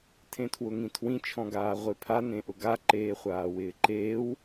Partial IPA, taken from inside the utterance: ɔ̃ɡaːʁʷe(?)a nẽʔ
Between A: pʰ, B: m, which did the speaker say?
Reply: A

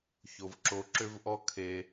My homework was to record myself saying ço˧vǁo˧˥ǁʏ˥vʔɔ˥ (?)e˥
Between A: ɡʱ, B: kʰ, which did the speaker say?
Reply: B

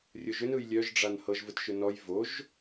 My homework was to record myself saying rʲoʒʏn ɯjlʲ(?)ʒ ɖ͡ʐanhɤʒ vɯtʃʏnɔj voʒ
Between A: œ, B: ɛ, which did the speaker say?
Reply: A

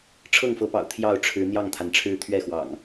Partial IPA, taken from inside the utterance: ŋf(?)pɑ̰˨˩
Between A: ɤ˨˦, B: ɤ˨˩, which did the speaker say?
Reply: A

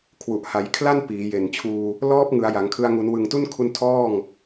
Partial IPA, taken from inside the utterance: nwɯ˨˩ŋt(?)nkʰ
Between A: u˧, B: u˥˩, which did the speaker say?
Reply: B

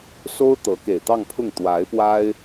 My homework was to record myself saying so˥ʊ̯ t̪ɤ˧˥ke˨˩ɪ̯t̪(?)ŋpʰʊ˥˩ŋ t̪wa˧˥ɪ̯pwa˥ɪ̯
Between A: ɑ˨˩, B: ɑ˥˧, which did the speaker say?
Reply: B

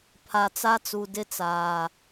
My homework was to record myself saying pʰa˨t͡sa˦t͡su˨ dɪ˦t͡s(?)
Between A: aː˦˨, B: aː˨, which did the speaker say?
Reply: B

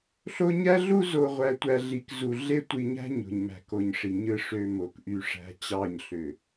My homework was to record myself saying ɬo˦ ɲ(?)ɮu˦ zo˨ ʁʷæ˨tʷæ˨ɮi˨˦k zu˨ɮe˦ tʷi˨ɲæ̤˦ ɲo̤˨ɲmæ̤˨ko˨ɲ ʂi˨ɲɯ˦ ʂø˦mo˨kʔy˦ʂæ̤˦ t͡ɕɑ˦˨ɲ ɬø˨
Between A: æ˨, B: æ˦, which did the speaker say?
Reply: B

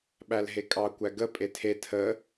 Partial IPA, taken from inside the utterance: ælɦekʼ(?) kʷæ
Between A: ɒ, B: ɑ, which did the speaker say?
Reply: B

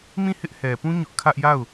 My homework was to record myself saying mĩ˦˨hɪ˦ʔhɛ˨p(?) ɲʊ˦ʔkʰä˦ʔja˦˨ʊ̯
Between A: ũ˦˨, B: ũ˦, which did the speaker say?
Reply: B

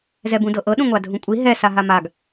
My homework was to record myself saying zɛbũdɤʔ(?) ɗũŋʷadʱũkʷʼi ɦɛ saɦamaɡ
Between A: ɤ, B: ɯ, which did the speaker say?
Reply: A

